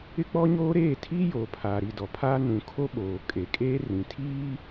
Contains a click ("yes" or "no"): no